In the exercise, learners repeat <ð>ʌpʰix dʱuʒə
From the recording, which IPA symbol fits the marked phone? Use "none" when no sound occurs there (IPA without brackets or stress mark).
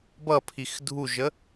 b